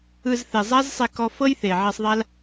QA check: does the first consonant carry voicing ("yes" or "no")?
yes